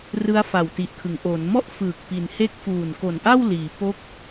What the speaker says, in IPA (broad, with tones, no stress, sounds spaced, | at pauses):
r ɯ˦˥ a̯ f a˨˩ w t i˨˩ ʔ kʰ ɯ˩˦ ŋ ʔ o˩˦ n m ɔ˥˩ ʔ f ɯː˨˩ k̚ p i˩˦ n h e˦˥ k̚ f uː˨˩ n k o˨˩ n ʔ a˥˩ w l iː˩˦ p o˦˥ k̚